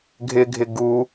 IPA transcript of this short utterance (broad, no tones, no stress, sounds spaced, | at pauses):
ɡʱ ɪ ɡʱ ɪ ɡ u